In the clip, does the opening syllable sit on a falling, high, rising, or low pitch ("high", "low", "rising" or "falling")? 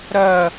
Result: falling